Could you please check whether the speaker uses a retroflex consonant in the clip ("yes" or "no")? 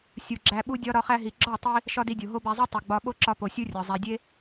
no